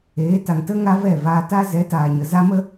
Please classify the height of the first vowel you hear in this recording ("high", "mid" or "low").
mid